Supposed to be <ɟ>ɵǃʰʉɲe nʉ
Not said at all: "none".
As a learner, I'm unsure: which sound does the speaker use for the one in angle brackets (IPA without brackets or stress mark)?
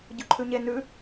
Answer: ɟ